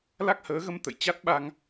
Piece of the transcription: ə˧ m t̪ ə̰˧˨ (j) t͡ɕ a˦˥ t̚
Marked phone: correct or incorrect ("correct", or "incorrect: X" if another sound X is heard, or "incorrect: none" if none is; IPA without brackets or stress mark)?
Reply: correct